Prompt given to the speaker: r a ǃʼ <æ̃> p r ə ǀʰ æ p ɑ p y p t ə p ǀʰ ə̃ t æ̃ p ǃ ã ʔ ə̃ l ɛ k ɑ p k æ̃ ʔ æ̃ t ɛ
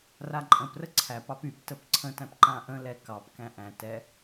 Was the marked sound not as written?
yes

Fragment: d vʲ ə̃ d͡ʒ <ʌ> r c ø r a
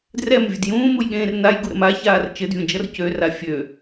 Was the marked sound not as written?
no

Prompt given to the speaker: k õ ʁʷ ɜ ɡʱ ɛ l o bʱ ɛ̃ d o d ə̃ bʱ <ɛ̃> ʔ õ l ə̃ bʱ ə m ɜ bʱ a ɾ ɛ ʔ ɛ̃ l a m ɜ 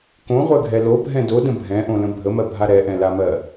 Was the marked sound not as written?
no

